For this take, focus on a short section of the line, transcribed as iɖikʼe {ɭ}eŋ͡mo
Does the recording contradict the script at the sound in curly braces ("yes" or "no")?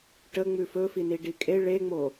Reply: no